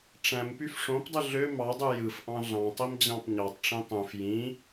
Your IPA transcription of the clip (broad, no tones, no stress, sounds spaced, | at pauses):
ʈ͡ʂ æ̃ m p y f ʂ õ p dˤ ɯ ɮ ø m ɑ dˤ y j ɯ f ʔ ɑ̃ ɮ ɑ̃ tˤ i m d͡ʑ ɑ̃ p ɲ ɑ tˤ ʈ͡ʂ ĩ tˤ ũ f j ĩ